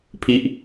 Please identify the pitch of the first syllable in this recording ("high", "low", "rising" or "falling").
falling